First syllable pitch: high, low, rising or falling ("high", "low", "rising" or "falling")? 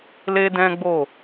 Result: high